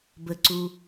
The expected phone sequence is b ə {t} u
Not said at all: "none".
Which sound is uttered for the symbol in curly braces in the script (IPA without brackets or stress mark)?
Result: ǀ